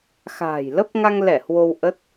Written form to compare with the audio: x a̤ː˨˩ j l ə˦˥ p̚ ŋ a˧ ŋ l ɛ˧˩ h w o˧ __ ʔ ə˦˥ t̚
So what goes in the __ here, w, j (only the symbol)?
w